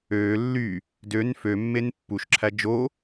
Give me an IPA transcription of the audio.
øː lː y | d ø n f ø mː e n pː u ʃ ǁʰ æ d͡ʒ o

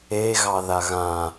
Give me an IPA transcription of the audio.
e ɣ ɑ ð a ɣ ã

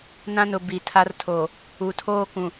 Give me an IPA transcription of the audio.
n ã˦ n ʊ˨ b i˨ tʰ a˦ r tʰ o˨ | u˨ tʰ oː˦ k ũ˨

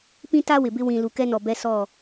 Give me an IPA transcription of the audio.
p ĩ˦ t a˦ w ɪ˨ b ɪ˦ w ĩ˨ l u˨ k ɛ˦ n ɔ˨ b ɛ˦ s ɔ˦˨

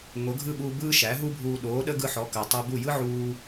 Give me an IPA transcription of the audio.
ŋ o˩˥ ɡʱ ɯ˥˩ ɠ uː˧ b ɯː˥ ʃ æ˩˥ ɦ u˥ bʱ uː˧ ɗ oː˩˥ ɗ ə˥ ɡ ɯ˧ ħ ɔ˩˥ k əː˩ tˤ əː˧ b u˥˩ j ɯ˥ ʕ uː˧

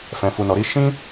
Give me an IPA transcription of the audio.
f ɛ̃˨ f u˨ n ɔ˨ ɾ i˧ ʃ ĩ˦

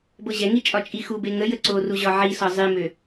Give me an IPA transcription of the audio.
b ɤ ʑ ɛ ŋ i t͡ʃʼ ɒ t͡ʃʼ i x u b e ŋ ə j ə ǀ o r u ʑ ɒ ʕ i s ɒ zˤ i m ø

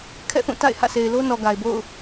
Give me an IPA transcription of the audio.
kʰ ɛ̰˦˨ θ ũ˦˨ t a̰˦˨ ɪ̯ h ä̰˦˨ s e˨ ɪ̯ l o˦ n ɔ˨ ɡ a˨ ɪ̯ b o̰˦˨ ʊ̯

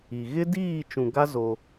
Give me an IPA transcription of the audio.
i˨ ɣ ɪ˦ d iː˦˨ t͡ʃ ũ˨ ɡ a˦ z o˦

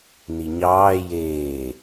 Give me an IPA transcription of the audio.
n i ɲ ɑː j eː

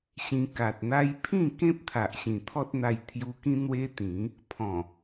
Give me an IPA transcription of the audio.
ɕ ĩ˧ k a˨ t̚ n̪ a˦ j pʰ ĩ˥˧ k ẽ˦ p̚ t̪ʰ a˨ ʔ ɕ ĩ˨˩ t̪ʰ ɔ˦ t̚ n̪ a˧ j t̪ʰ j u˧ k ĩ˦ n̪ w e˦ t̪ ĩ˨˦ | pʰ ɔ̃˨˩

